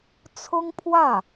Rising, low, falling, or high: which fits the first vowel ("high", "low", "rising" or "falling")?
high